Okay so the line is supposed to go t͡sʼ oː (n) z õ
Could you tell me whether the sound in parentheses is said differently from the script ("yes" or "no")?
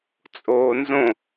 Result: no